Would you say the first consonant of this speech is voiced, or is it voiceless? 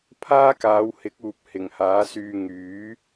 voiceless